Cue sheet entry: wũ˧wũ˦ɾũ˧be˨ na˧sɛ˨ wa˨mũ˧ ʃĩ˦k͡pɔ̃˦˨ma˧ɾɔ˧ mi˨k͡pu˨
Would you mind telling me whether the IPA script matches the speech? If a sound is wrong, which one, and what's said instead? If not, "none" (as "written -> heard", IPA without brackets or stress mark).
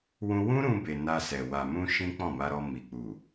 none